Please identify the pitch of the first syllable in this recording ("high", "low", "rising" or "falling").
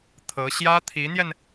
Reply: rising